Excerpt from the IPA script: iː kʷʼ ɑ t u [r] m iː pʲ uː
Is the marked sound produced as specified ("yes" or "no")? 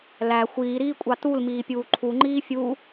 no